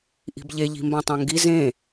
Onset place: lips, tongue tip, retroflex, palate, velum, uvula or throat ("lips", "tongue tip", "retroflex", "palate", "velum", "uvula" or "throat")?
throat